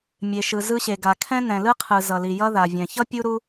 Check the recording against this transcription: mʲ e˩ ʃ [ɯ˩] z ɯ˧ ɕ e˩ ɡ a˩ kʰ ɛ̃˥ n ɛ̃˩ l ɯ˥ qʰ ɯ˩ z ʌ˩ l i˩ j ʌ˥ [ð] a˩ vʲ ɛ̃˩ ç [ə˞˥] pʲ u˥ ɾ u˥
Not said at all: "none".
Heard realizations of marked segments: ɯ˩, ð, ʌ˥

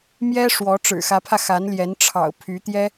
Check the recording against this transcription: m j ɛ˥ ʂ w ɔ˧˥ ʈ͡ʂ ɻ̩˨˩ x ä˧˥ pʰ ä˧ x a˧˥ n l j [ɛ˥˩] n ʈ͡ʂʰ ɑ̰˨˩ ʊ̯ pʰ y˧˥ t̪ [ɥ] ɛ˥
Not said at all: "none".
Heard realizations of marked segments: ɛ˧˥, j

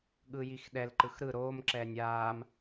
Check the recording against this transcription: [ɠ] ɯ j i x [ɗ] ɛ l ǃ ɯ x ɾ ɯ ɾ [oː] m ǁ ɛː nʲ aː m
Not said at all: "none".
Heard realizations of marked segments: ɠ, ɗ, oː

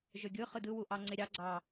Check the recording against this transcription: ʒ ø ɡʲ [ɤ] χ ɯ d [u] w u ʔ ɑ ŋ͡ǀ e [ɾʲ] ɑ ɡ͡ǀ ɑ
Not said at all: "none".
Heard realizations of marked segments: ɯ, ɯ, ɾʲ

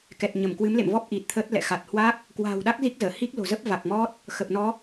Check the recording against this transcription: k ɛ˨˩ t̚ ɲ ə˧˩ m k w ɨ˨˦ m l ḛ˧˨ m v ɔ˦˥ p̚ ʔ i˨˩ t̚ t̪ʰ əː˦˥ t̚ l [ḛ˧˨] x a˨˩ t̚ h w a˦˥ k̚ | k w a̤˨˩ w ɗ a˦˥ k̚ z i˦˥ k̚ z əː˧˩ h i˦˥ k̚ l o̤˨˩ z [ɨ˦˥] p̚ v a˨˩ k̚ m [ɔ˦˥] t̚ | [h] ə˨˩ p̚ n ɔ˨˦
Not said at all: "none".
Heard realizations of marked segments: ɛ̰˧˨, ə˦˥, ɔ˦˥, x

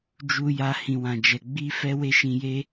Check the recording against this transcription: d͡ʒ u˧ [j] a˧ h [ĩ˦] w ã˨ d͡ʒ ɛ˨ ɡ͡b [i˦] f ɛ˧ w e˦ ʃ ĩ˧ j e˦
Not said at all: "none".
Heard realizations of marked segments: j, ĩ˨, i˧

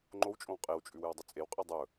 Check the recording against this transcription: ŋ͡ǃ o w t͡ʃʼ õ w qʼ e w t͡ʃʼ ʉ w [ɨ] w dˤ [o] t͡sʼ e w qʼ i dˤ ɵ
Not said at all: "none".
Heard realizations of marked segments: ɨ, ɵ

